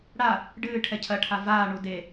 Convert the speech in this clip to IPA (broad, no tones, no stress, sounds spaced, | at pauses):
ɽ a | ɖ ɨː ʈʰ ɛ cʰ ɐ ʈʰ a v aː ɳ u d e